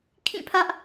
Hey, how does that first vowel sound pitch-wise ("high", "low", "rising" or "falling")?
falling